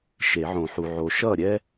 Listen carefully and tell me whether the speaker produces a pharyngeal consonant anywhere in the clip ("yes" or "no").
yes